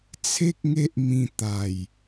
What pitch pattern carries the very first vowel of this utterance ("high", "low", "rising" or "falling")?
high